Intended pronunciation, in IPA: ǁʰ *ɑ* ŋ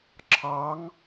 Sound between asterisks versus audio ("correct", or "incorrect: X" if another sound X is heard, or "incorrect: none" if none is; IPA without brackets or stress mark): correct